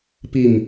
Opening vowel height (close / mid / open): close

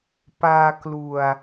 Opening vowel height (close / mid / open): open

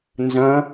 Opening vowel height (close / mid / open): open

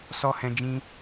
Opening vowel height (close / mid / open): mid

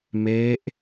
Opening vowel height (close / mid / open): mid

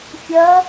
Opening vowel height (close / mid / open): open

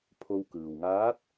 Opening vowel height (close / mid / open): mid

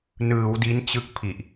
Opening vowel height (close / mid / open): close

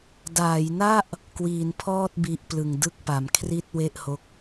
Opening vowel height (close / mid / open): open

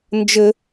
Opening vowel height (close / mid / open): mid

